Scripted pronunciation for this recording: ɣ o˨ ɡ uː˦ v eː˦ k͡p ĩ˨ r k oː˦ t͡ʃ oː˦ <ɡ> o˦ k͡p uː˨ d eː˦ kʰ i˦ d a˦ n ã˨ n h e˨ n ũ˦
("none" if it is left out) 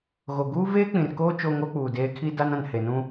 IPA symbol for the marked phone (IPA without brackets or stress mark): ŋ